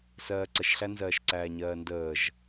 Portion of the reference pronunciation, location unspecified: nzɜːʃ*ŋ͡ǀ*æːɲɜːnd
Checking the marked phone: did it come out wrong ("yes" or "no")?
yes